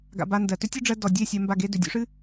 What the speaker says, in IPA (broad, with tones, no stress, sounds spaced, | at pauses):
ɡ a̰˧ b a˧ n d ɜ˨ t ʏ˦ tʲ o˦ ɖ͡ʐ ɜ˧ d ɔ˨ dʲ e˦˨ sʲ ɜ˧ m b a˦˨ ɡ e˦ d ʏ˨ dʲ o̰˦ ʂ ɨ˦